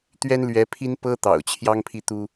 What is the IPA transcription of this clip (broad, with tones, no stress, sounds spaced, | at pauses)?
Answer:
t̪ ɥ ɛ˥ n l ɥ ɛ˧˥ pʰ i˥ n p ɤ˥ t̪ ɑ̰˨˩ ʊ̯ t͡ɕʰ j ɑ˥ ŋ pʰ i˥˩ t̪ u˥